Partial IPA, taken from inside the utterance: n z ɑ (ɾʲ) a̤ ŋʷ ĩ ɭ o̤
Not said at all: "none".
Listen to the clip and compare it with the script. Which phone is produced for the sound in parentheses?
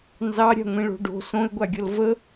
ɾʲ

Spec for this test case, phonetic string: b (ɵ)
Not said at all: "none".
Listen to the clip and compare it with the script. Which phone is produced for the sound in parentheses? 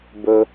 ɵ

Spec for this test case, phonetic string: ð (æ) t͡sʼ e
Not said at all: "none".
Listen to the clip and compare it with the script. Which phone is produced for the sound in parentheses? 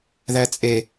æ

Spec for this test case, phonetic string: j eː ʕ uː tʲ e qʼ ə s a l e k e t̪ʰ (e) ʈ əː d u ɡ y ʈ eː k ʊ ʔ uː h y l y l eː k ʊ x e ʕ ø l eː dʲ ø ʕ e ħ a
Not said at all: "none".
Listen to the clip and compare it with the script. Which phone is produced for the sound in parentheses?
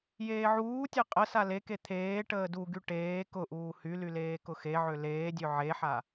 eː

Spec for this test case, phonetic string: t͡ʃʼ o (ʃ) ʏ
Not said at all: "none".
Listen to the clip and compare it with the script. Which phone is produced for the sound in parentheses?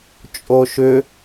ʃ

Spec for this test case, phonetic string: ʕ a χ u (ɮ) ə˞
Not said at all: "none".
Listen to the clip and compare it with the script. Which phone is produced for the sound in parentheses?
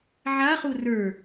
r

